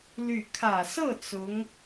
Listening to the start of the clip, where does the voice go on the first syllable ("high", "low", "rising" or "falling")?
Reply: falling